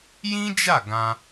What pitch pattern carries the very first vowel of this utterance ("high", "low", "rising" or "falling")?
high